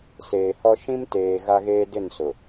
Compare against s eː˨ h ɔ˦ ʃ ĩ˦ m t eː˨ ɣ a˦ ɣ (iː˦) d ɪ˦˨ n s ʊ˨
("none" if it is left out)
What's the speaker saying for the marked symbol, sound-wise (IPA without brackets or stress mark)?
eː˦